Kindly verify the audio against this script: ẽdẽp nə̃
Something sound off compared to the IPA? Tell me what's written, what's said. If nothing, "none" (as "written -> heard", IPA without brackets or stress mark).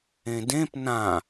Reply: ə̃ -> ã